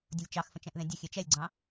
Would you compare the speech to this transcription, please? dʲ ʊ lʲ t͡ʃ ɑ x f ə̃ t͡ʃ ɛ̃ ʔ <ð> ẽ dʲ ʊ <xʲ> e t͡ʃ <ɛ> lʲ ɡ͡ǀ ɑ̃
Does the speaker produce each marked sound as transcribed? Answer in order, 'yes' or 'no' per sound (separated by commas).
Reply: yes, yes, yes